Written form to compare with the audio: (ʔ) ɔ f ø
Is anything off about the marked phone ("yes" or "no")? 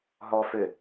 yes